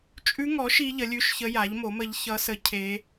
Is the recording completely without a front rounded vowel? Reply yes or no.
yes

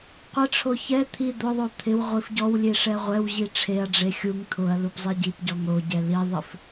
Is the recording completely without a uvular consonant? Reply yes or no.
no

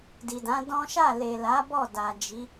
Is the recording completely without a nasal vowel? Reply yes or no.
no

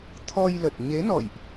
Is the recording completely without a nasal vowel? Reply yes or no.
yes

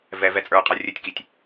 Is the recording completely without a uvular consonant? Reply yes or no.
no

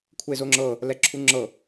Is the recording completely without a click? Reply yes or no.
no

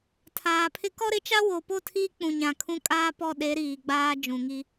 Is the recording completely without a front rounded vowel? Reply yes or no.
yes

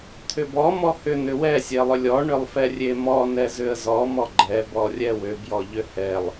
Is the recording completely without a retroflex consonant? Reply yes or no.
no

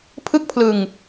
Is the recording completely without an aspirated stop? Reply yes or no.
no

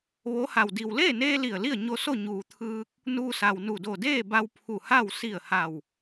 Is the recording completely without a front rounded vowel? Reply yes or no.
yes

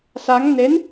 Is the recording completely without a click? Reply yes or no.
yes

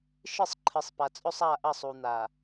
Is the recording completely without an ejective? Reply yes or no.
no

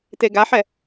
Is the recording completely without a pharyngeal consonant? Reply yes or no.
no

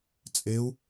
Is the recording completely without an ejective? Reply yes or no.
no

